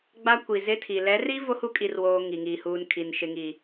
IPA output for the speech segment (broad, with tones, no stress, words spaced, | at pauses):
ɡ͡ba˦kʷi˨zɪ˦tʰi˨ lɛ˨˦ri˦ vo˦hu˦kʼi˨rwoː˨ ŋi˨ŋiː˨huː˨nkʰi˨n ʃɪ˨ŋi˨